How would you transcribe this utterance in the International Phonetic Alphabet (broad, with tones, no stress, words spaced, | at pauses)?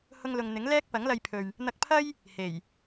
hʊ˥ŋlʊ˧ŋ n̪ɪ˨˥ŋ lɛː˥k̚pɐ˨˥ŋlɐ˧jpʰɵ˨ɥ | n̪ɐ˧k̚pʰɐ˥j | he˨˩j